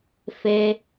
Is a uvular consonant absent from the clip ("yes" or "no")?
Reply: yes